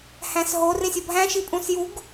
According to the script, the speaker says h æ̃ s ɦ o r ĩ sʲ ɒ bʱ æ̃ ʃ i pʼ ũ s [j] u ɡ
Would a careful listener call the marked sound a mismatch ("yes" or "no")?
no